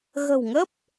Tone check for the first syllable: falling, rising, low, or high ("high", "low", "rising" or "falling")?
low